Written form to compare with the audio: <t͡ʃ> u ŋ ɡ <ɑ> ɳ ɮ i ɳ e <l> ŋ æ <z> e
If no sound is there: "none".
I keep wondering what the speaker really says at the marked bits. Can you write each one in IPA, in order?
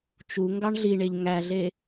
t͡ʃ, ɑ, ʎ, ɮ

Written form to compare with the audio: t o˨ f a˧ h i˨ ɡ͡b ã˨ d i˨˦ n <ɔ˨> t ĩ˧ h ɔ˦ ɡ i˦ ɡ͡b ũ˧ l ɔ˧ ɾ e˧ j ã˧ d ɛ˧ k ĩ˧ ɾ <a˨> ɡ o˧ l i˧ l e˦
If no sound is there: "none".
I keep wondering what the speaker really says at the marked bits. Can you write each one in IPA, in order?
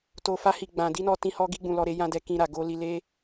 ɔ˧, a˨

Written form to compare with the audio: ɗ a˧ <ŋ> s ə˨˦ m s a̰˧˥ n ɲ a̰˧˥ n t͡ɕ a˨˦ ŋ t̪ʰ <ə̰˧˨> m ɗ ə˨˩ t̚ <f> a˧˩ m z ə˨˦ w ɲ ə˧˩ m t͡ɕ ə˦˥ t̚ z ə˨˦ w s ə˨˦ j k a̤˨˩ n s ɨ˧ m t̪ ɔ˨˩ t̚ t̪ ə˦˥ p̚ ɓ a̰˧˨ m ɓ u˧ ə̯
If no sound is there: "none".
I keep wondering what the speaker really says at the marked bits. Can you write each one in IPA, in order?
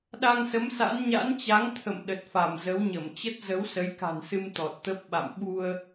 ŋ, ə̰˧˨, f

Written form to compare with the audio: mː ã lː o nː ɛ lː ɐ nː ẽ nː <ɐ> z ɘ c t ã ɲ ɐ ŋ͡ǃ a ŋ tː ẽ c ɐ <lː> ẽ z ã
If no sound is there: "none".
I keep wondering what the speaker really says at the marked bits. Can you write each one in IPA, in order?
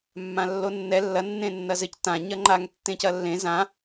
ɐ, lː

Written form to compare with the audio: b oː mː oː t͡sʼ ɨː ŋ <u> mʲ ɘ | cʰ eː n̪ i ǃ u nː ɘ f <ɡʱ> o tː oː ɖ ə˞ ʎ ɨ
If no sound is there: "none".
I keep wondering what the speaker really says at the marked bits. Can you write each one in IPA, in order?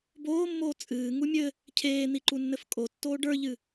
u, kʼ

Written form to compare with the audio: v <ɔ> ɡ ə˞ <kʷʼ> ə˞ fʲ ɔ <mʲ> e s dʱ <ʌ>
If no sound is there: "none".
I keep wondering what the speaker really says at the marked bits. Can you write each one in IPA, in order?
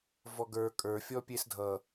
ɔ, kʼ, pʲ, ʌ

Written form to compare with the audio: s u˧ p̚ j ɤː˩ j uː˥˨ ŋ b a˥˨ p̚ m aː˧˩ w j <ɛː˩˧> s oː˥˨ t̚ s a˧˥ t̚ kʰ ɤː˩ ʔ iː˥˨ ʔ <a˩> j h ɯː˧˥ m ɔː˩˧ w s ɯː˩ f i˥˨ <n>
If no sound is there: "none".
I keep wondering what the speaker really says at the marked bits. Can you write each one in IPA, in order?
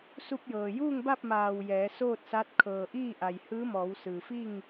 ɛː˩˧, a˩, ŋ

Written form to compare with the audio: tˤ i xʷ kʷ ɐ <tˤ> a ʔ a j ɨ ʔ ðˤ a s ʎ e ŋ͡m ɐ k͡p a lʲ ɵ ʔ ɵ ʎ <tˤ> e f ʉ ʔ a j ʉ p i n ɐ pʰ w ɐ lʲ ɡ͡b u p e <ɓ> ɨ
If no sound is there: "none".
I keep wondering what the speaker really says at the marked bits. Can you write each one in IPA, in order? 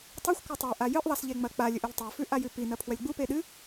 tˤ, tˤ, ɗ

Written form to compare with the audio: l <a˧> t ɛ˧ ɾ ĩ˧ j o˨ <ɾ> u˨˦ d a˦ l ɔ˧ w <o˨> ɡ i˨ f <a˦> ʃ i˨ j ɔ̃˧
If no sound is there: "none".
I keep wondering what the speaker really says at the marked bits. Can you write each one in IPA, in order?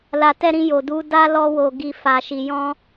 a˨, d, o˨, a˨

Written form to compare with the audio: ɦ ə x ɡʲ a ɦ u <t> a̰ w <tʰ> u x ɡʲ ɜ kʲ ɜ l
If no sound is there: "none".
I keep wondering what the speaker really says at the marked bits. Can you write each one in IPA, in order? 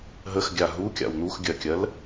kʲ, n̪

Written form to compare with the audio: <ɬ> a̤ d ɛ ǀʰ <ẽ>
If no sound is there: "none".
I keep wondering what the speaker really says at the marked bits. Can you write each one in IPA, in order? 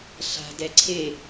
ɬ, e

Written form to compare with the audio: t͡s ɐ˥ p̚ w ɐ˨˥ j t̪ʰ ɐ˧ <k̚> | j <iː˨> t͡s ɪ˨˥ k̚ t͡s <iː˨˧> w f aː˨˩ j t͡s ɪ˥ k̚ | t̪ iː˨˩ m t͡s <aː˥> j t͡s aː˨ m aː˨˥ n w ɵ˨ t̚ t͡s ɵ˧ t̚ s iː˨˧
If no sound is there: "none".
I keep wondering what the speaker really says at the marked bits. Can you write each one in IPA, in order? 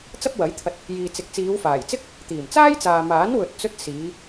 t̚, iː˨, iː˨˧, aː˥

